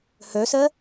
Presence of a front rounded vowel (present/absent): present